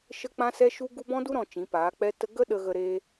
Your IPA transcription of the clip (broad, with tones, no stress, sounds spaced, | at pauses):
ʃ ə˦ k͡p ã˦ s ɛ˦ ʃ u˦ ɡ u˦ b ɔ̃˦ d u˦ ɾ ɔ̃˧ t͡ʃ ĩ˨˦ p aː˨˦ k͡p ɛ˦ t ə˦ ɡ ə˦ ɗ ə˧ ɣ ə˧ ɾ e˦